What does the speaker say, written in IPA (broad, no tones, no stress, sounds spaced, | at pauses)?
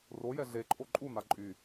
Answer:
r o j ɛ ɮ e ǃʼ o ǃʼ u n̪ a ǃʼ y